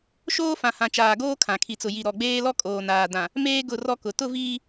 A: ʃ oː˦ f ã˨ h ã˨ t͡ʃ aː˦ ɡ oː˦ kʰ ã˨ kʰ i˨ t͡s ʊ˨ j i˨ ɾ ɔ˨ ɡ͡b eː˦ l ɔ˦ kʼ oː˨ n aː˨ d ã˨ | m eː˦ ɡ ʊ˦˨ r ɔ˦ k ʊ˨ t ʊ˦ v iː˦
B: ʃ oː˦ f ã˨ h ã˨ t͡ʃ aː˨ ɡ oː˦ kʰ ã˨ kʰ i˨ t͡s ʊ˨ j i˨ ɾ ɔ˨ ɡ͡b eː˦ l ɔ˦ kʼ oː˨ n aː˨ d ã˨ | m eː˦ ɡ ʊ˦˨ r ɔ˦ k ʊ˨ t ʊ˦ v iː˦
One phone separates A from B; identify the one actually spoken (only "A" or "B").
B